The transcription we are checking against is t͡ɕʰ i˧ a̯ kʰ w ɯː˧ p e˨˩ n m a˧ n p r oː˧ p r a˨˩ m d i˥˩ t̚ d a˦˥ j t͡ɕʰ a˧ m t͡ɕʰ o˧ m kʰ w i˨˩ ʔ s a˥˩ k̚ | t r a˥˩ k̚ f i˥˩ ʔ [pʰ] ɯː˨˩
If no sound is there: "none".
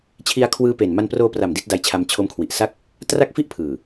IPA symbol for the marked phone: pʰ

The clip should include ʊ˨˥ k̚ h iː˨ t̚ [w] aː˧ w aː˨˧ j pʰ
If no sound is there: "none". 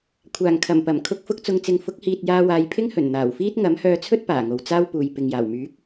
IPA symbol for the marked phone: j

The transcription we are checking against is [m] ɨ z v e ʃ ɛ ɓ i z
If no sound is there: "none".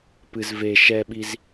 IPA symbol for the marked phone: p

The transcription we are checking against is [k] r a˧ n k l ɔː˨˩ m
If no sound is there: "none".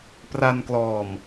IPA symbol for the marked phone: p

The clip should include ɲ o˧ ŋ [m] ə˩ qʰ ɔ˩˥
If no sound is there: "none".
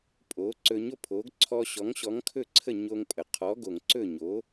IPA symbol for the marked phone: pʼ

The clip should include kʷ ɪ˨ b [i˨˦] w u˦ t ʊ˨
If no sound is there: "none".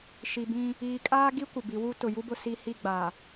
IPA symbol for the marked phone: i˨˦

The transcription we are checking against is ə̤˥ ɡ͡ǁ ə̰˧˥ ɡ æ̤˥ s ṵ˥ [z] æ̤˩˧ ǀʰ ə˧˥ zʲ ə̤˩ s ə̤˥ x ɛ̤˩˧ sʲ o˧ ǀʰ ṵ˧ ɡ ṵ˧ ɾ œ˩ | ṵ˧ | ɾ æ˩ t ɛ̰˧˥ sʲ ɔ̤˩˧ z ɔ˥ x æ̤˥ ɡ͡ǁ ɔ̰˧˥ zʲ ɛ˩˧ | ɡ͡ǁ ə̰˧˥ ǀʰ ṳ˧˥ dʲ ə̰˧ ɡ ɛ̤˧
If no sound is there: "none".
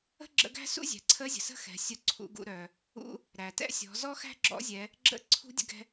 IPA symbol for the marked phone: zʲ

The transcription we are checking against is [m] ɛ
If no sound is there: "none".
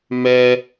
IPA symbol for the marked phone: m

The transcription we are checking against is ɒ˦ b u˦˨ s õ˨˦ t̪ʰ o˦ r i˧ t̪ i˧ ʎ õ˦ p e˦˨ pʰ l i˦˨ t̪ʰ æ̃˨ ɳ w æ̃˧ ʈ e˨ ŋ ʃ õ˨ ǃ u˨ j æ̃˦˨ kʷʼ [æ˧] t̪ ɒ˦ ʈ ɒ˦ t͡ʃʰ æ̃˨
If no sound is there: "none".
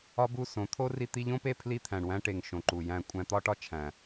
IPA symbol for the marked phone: æ̃˧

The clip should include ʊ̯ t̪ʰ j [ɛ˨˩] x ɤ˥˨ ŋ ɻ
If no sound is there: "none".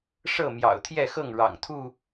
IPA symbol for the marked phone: ɛ˥˨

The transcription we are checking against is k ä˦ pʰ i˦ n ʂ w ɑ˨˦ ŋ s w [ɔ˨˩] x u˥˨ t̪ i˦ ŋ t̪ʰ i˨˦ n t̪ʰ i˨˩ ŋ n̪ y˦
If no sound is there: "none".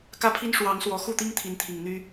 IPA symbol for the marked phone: ɔ˨˩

